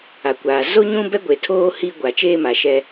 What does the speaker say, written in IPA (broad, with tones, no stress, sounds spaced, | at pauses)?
a˨ kʷ aː˨ z o˦ ɲ ũ˦ b ɛ˦ ɡʷ e˨ tʰ oː˦ h i˦ ɡʷ a˨ t͡ʃ eː˦ m a˨ ʃ ɛ˦